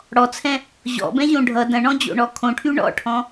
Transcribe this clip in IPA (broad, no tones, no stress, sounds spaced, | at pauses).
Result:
ɽ ɔ t͡sʰ ɛ̃ | ʑ ɔ̰ b ɛ̃ ʑ õ ɖʱ ʌ d ɐ̃ ɳ ɔ̃ d͡ʑ o̰ ɳ ɔ kʰ õ ʈʰ y ɳ ɔ̰ ʈʰ ɔ̃